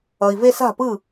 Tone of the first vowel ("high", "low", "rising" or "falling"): low